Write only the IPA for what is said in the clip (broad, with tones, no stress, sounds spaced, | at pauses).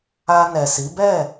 a˧ n ɛ˨ s i˨˦ b ɛ˦˨